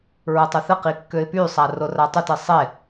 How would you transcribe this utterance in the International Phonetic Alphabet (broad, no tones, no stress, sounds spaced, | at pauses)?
ɹ ə tˤ ə θ ə q i kː ø ɪ̯ p y sˤ a r o r a tˤ ø t i sˤ e